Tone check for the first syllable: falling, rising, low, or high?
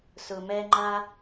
low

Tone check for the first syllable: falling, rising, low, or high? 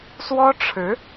high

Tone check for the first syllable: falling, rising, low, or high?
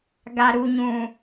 low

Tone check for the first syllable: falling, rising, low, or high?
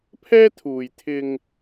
high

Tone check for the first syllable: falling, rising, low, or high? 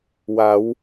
rising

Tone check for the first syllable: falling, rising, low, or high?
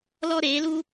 high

